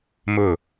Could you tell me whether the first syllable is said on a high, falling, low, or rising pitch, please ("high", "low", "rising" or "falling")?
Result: falling